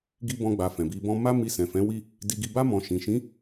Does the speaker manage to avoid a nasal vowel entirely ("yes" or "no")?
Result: no